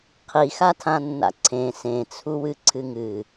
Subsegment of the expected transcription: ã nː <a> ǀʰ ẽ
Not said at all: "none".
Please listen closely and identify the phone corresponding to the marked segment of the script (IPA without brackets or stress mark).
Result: a̰